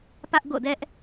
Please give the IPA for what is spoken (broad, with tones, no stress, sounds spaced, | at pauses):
p ä˦ ʔ ɡ o̰˦˨ d ɛ˦ ʔ